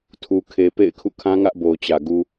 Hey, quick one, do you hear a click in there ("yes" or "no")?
no